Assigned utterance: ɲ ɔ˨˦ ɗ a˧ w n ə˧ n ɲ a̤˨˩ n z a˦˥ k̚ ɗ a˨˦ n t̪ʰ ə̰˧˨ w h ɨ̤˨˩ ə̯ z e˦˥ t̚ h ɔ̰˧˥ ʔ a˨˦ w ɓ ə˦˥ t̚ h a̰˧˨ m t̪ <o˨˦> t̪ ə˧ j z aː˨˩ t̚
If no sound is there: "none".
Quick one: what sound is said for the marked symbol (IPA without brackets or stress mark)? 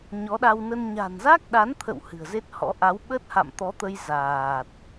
ɔ˨˦